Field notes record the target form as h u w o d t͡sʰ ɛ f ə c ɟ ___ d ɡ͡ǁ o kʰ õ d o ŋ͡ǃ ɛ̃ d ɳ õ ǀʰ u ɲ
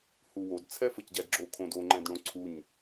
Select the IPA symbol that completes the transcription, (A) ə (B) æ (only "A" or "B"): B